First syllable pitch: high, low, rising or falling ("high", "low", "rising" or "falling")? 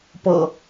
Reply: low